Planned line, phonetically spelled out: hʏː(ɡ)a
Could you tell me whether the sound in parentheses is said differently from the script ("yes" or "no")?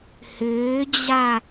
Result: yes